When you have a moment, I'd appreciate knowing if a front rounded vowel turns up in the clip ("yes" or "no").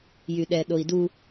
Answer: yes